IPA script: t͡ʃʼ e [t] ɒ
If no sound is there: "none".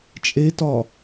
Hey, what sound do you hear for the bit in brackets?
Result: t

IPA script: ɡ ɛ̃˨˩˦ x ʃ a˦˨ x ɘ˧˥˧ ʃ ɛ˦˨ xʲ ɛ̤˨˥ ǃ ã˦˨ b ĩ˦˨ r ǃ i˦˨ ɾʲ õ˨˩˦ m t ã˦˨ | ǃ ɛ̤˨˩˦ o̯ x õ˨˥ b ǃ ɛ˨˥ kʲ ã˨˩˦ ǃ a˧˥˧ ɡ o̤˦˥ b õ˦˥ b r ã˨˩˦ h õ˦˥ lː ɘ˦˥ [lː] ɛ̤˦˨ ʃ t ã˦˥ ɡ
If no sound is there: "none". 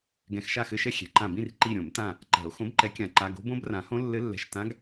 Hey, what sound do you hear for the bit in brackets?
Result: lː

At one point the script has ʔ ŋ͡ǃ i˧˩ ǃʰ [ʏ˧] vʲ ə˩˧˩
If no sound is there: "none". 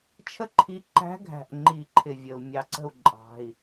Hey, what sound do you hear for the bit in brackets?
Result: ɪ˧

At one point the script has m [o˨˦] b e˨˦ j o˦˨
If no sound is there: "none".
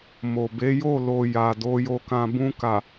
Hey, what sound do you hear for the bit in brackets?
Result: o˨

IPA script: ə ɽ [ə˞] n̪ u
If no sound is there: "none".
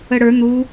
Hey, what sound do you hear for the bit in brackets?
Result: ə˞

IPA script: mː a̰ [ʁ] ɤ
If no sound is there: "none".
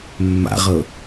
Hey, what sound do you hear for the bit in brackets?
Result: ʁ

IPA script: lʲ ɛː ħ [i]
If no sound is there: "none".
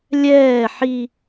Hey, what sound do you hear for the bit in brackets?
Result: i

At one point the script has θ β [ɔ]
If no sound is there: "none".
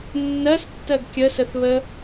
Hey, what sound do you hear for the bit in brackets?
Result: ə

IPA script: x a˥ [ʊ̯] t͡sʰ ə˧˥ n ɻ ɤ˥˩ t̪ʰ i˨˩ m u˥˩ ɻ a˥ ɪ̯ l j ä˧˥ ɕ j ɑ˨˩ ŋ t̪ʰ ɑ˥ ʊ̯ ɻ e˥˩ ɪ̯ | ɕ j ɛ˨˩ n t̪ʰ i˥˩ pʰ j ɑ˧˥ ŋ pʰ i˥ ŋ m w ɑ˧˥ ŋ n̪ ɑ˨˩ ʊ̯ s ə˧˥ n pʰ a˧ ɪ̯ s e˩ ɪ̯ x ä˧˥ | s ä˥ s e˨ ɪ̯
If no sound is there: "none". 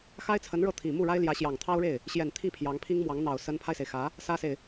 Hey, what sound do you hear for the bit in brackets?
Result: ɪ̯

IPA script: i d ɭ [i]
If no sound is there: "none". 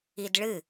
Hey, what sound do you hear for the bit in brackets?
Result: ɨ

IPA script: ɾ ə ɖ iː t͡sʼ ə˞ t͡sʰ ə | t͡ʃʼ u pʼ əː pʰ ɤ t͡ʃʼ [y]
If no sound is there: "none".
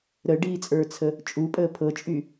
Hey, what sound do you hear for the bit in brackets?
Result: y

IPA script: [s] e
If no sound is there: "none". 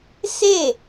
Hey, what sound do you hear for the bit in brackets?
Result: s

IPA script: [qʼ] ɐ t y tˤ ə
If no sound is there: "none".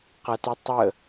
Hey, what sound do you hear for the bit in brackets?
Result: q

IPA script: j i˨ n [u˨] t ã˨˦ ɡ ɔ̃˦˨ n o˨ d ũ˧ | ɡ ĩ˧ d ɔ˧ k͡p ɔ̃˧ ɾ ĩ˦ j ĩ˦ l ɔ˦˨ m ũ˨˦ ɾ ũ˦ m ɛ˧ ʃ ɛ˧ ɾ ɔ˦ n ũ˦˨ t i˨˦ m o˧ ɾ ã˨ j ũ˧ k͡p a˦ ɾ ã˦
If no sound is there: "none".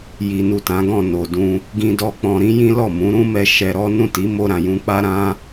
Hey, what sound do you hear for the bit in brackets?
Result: u˨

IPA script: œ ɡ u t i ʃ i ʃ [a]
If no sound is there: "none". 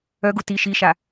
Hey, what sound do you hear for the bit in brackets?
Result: a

